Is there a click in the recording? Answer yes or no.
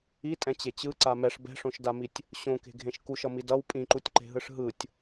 yes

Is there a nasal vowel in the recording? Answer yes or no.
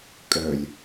no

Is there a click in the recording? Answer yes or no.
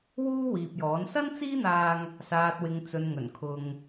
no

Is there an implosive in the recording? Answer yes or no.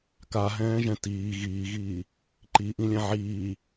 no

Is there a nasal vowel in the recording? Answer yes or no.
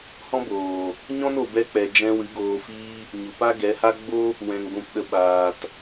yes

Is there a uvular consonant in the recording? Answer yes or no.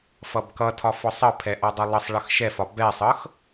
no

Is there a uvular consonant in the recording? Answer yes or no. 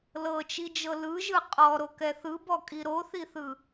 yes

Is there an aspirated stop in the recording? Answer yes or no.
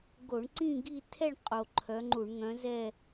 yes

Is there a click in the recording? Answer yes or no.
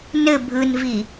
no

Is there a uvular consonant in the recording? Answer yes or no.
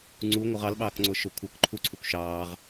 yes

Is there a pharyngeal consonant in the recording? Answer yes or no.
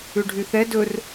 no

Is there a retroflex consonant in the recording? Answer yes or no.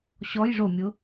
yes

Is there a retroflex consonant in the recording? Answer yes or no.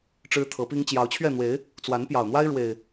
yes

